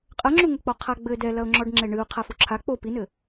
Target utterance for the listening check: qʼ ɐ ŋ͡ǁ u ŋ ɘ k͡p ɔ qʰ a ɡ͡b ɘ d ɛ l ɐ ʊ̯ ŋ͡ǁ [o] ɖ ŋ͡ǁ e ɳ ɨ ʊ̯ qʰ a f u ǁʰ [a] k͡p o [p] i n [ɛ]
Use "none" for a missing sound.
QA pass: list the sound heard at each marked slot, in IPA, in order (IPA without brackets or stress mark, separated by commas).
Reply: ɔ, a, p, ɘ